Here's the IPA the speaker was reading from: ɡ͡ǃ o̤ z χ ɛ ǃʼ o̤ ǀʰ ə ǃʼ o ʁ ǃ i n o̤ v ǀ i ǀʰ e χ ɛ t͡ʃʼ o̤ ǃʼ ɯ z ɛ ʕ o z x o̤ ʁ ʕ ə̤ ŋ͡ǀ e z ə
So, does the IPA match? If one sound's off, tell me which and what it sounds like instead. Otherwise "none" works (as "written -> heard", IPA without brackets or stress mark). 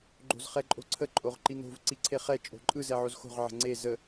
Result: none